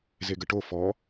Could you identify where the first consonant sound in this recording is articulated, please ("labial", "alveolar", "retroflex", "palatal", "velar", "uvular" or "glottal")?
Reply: alveolar